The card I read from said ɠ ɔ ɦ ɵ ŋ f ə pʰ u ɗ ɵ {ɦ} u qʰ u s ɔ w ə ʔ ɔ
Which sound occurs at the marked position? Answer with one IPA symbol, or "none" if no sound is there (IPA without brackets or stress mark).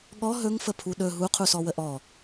ɦ